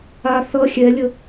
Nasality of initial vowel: oral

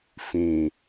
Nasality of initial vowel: nasal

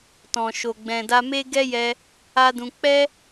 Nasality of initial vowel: nasal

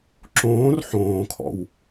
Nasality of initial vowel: nasal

